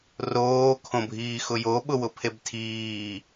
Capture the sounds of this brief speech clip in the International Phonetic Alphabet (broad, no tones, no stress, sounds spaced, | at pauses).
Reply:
r oː kʰ õ bʱ iː x ʊ j o ɓ ʊ w ʊ pʰ e b tʰ iː